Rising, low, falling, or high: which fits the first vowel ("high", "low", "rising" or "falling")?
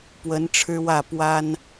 rising